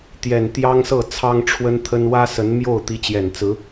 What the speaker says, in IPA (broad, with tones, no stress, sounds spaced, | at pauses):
t̪ j ɛ˨˩ n t̪ j ɑ˥ ŋ s ɤ˥˩ t͡sʰ ɑ˥ ŋ ʈ͡ʂʰ w ə˥ n t̪ʰ ə˥ n w ä˥ s ə˧˥ n m j o˥˩ ʊ̯ t̪ i˧˥ t͡ɕ j ɛ˨˩ n t͡s ɹ̩˧˥